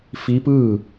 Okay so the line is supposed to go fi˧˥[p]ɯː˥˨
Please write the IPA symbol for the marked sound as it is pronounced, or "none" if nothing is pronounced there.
p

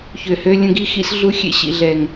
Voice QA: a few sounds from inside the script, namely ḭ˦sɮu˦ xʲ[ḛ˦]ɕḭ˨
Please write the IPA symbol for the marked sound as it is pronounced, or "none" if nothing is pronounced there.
ḛ˦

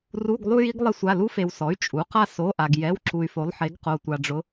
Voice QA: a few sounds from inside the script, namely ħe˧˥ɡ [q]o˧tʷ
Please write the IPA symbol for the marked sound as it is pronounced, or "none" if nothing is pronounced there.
q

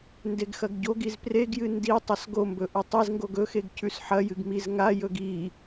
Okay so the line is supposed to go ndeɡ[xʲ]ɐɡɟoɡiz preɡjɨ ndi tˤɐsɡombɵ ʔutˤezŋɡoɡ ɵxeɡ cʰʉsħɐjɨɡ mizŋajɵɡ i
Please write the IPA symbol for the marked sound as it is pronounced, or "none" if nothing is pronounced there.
x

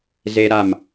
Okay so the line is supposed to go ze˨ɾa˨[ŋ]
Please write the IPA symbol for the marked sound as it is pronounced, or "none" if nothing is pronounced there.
m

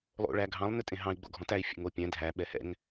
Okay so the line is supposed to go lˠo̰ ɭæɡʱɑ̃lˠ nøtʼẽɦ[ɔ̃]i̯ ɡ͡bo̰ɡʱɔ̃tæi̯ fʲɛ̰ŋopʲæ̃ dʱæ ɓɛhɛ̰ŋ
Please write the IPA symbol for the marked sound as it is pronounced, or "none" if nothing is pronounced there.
ɑ̃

